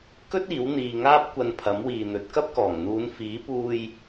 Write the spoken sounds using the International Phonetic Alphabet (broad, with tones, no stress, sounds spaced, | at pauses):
k ɵ˥ t̚ iː˨˥ w n̪ iː˨ ŋ aː˥ p̚ kʷ ɐ˧ n pʰ ɐ˨˥ m w iː˨ n̪ ɵ˨˥ t̚ k ɐ˥ p̚ k ɔː˨˩ ŋ n̪ uː˨˧ n f iː˨˥ p uː˧ j